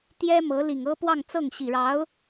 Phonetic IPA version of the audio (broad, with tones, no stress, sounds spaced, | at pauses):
t̪ j ɛ˥ m ɤ˧˥ l i˨˩ ŋ ɤ˥ p w ɑ˥˧ ŋ t͡s ɤ˥˩ ŋ ɕ i˨˩ ɻ ɑ˧˥ ʊ̯